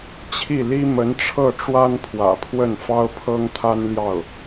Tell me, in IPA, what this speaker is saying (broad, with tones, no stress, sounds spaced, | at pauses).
t͡ɕʰ i˥˩ l i˥ m ə˧˥ n ʈ͡ʂʰ ɤ˥˩ ʈ͡ʂ w a˥ n pʰ w ä̰˨˩ pʰ w ə˥˩ n f ɑ˥ ʊ̯ pʰ ɤ˥ ŋ t̪ʰ a˥ n l j ɑ˥˩ ʊ̯